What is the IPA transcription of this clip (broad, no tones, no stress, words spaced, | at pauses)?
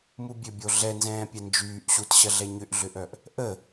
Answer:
mubʲøbʲo ɮɛnzɛ̃ː pʲɛnd͡ʒyːʔ ɕutɕɐɮɛ ɲʏʔɮʏʔœʔ | ʔə